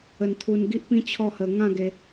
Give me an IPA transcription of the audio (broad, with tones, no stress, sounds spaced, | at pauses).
ə˧ n t̪ʰ u˧ n ɡ i˦ ʔ p ĩ˦ t͡ɕʰ ɔ˥˧ h ə˧ ŋ ã˥˧ ɡ e˧